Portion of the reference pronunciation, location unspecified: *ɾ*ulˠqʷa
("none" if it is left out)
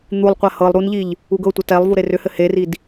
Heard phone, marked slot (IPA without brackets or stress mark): n̪